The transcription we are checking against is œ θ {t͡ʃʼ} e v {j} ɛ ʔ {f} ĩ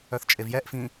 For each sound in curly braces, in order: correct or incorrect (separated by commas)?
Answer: correct, correct, correct